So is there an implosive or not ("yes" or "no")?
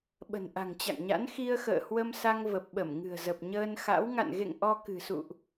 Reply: yes